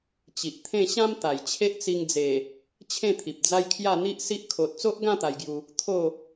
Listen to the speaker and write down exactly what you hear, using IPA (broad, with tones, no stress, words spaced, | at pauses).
t͡ɕi˨ʔt̪ʰẽ˥˧ ɕã˦m t̪a˨˩jt͡ɕʰe˦ʔ t͡si˧ŋd͡ze˨˩ | t͡ɕʰẽ˥˧t̪ʰi˨p̚d͡za˦jkʰja˥˧ n̪i˦ʔsi˦ʔ kʰo˨t̚t͡so˦ʔɡã˥˧ t̪a˧jɡju˧ | t̪ʰo˥˧